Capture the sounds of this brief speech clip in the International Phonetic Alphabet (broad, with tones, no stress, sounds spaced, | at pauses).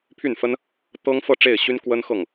pʰ y˥˩ n f ə˥ n | t̪ ɤ˥ ŋ f ɤ˥˧ ʈ͡ʂ e˥˩ ɪ̯ ɕ y˥ n k w ə˥ n x ɤ˥˩ ŋ